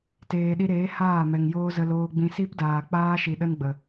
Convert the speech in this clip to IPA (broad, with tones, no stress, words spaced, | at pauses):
teː˨ɗi˧ɾeː˨˦ haː˦˨mɛ˨ŋjoː˦zə˧ loː˧ɡ͡bĩ˧ si˦pdaː˨k͡paː˦ ʃi˨ɗə˦nɡ͡bə˨